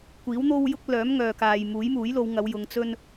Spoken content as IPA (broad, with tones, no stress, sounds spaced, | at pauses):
kʷ iː˨˥ w n̪ o˥ w j ʊ˥ k̚ l œː˨˥ m ŋ œː˨ k aː˨ j m uː˨˥ j m uː˨˥ j l o˨˧ w ŋ ɐ˨˧ w j ʊ˨˧ ŋ t͡s ɵ˥ n